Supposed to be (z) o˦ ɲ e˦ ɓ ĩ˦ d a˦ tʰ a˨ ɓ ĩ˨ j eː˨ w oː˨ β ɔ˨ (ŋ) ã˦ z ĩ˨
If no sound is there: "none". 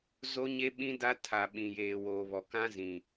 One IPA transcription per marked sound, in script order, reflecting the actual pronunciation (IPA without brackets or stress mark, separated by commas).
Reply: z, k